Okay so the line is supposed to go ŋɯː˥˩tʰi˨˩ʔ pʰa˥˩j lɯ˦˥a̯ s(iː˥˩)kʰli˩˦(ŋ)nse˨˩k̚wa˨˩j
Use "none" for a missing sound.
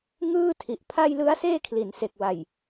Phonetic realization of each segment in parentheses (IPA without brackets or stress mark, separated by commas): eː˥˩, none